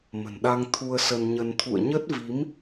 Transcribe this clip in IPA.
mə̤˨˩nɗa˧ŋ t̪ʰu˧ə̯sə˧nɲə˧n t̪ʰṵ˧˨ə̯ɲə˦˥t̚vi˨˦m

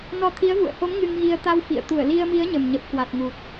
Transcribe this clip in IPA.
nɔ˧t̪ʰi˨˦ə̯vṵ˧˨ə̯ho˨˦m ŋɨ˧ŋɣi˧ə̯ t̪a˧w fḭ˧˨ə̯ t̪u˧˩ə̯li˧ə̯mi˨˦ə̯ ɲə˨˩mɲə˨˩p̚kwa˨˩t̚ŋu˨˩t̚

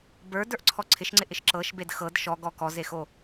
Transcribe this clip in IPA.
bə˞də˞ʔǀʰɔ ǀʰɪʃŋ͡ǀɪʔɪʃ ǁɤʃbed xɤd ʃɔɡɔ kɔzexo

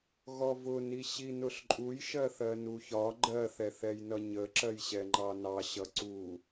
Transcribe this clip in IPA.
ɣɔvʊni ɕinʊɬǃʼuj ʃɜθɜnuçɒ ɡ͡ǃɜθɛ θɛjnʌɲə ǁɜjɕɛŋ͡ǃɑnɑ ɕʌǀu

